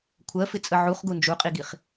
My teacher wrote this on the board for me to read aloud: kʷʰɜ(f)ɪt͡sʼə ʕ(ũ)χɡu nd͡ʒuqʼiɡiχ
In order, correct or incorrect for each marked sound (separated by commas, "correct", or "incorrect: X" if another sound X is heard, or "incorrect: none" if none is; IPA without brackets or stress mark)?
correct, incorrect: u